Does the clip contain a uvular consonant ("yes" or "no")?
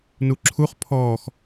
yes